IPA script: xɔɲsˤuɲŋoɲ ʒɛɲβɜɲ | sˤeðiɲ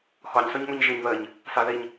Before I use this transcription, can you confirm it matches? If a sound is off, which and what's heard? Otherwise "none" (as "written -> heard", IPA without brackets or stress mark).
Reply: ɛ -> e